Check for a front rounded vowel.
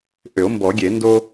present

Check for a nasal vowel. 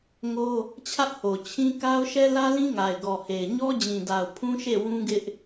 present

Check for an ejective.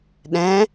absent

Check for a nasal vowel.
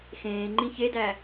present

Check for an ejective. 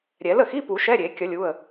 absent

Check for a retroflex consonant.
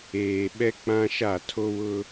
absent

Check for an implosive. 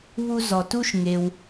absent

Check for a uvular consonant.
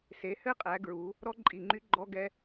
present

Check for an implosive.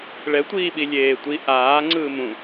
present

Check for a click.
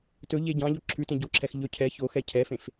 present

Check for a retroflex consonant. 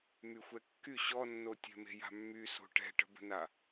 present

